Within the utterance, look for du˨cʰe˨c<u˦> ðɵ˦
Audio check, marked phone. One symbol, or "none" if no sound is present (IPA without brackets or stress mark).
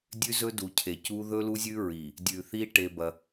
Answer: u˦